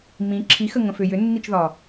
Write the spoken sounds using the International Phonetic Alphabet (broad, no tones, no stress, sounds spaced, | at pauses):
m ĩ ǁʰ i x ə ŋ ə̃ f ʏ j ʏ nː i t͡ʃ ð ɒ